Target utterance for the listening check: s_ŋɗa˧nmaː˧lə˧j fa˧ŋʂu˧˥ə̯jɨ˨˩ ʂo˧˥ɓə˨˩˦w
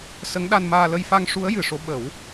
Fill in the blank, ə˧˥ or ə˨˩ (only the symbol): ə˧˥